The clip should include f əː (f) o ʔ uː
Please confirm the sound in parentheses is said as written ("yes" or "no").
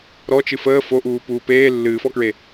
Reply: yes